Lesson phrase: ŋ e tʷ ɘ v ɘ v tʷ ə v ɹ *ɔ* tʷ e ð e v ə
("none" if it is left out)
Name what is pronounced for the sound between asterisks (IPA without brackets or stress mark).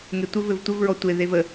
ɔ